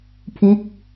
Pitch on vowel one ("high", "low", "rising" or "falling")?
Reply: falling